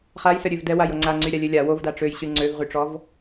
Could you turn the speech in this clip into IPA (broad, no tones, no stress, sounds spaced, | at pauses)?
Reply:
χ a j s œ ɾʲ ø v d ɛ w a j o ŋ͡ǀ a ŋ͡ǀ y ɾʲ a lʲ ø lʲ a w o v d a ʈ͡ʂ ø j ɕ y ŋ͡ǀ ø v ʁ y ʈ͡ʂ ɔ v